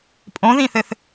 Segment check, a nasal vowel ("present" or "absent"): present